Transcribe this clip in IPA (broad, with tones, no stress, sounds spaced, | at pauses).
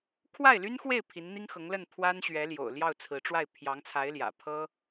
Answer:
kʰ w a˥˩ ɪ̯ l y˥ n x w e˥˩ ɪ̯ pʰ i˧˥ n n̪ i˥ ŋ x ɤ˧˥ ŋ l ə˥˩ n pʰ w a˥ n ɕ ɥ ɛ˧˥ l j o̰˨˩ ʊ̯ l j ɑ˥˩ ʊ̯ t͡sʰ ɹ̩˧˥ ʈ͡ʂ w a˥˩ ɪ̯ pʰ j ɑ˧˥ ŋ t͡sʰ a˧˥ ɪ̯ l j ä̰˨˩ pʰ ɤ˥